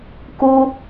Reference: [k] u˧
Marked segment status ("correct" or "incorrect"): correct